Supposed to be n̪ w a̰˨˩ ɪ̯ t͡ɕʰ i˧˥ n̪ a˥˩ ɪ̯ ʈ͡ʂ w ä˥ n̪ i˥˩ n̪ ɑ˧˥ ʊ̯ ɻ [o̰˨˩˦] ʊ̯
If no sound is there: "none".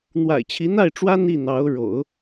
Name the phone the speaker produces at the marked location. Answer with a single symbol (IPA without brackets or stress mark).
o̰˨˩˦